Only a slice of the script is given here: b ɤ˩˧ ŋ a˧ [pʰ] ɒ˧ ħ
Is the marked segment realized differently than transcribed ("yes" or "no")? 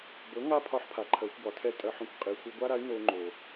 no